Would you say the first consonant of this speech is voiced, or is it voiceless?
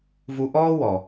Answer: voiced